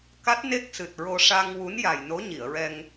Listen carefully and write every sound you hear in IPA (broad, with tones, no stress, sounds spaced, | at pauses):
k a˦˥ t̚ n e˦˥ k̚ s ɨ˨˩ t̚ ɹ o˧ ʂ a˧ ŋ w u˧˥ n j a˨˩ j n o˧˥ ɲ i˨˩˨ ə̯ ɹ ɛ˧ ŋ